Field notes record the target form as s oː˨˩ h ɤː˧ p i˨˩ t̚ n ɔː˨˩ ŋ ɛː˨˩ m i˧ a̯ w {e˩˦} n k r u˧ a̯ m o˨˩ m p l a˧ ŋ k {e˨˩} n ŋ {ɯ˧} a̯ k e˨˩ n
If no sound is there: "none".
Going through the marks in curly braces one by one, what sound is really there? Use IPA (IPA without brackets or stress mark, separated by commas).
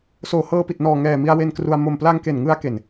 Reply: e˧, e˨˩, ɯ˧